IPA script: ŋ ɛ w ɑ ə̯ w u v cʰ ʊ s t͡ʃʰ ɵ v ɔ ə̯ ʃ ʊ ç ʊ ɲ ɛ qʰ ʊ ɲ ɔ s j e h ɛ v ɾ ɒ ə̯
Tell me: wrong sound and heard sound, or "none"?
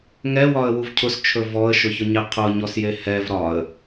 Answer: ɑ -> ɒ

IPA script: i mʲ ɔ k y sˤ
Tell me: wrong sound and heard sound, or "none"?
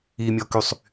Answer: none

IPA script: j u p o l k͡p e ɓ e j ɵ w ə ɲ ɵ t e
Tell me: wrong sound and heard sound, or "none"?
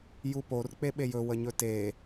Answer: l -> r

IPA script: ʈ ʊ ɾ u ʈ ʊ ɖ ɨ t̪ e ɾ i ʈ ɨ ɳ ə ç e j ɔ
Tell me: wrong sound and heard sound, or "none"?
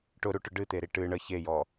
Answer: none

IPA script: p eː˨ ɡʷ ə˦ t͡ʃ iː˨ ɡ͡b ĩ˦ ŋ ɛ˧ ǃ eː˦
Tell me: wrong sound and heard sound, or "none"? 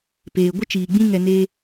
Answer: ǃ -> n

